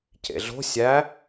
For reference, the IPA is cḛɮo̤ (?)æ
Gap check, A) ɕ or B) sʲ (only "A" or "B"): B